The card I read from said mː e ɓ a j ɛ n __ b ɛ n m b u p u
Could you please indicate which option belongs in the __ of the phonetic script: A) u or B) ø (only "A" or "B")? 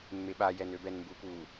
B